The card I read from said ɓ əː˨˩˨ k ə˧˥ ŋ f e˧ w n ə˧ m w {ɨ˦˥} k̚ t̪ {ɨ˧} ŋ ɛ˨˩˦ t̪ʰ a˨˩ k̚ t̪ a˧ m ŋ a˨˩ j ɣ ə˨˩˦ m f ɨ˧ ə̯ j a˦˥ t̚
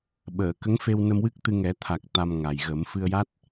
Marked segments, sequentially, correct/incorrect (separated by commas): correct, correct